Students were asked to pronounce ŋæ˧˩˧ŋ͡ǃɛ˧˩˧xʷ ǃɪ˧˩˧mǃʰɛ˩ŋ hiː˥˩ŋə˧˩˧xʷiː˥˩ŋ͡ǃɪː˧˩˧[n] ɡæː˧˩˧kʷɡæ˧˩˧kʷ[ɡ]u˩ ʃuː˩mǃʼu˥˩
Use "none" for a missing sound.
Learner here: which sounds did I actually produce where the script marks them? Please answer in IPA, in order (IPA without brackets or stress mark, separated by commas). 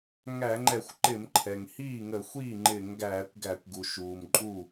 ŋ, ɡ